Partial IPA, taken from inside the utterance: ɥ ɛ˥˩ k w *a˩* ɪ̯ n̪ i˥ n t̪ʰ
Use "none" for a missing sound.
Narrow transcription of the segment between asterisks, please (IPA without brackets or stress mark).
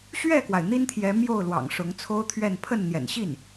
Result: a˩